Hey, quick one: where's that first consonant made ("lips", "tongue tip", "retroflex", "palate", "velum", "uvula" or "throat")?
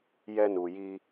palate